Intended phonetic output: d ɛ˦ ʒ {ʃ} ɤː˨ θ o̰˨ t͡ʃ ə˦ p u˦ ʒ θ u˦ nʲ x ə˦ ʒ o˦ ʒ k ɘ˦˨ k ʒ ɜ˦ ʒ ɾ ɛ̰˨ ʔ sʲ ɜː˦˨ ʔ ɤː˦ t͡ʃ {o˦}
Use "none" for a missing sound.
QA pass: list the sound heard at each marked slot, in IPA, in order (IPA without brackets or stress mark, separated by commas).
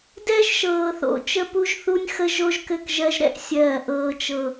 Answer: ʃ, ɤ˦